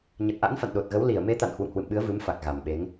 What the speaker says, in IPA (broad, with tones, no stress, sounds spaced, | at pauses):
ɲ ə˨˩ t̚ ʔ a̰˧˥ n f a̰˧˨ n ɗ o˨˩ t̚ ɣ ə˨˦ w l i˧˩ ə̯ m e˨˦ t̪ a̰˧˨ n h w ṵ˧˨ ŋ h w ɨ̰˧˨ m ɓ ɨ˨˦ ə̯ v ɨ˨˦ m f a˨˩ k̚ ɣ a˨˩ m ɓ e˨˦ ŋ